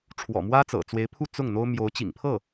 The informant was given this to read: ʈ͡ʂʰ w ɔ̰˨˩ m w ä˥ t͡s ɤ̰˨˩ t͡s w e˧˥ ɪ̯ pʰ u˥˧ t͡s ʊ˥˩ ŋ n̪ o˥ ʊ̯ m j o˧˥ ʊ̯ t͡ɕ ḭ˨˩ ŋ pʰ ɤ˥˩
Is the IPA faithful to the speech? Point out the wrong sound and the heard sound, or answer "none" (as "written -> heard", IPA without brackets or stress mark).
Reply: none